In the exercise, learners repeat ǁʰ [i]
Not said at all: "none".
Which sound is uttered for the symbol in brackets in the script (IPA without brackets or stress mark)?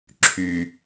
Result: y